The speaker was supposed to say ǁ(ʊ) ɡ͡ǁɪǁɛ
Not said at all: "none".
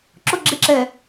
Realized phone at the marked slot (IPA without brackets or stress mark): ʊ